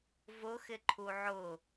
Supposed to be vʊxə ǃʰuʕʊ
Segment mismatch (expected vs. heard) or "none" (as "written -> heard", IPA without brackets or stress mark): ə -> ɪ